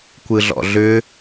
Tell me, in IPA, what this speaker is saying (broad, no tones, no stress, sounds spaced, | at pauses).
kʷ ɯ ɮ ɔ̰ ɮ ʏ